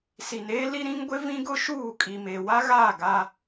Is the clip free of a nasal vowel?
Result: no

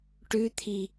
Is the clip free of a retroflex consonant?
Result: no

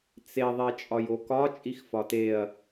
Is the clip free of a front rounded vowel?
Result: yes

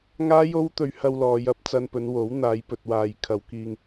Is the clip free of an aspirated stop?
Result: no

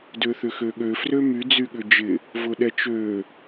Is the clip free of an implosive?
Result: no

